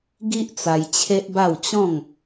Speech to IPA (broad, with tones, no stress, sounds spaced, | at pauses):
ɡ i˦ ʔ t͡s a˧ j t͡ɕʰ e˦ ʔ b a˥˧ w t͡ɕ ɔ̃˥˧ ŋ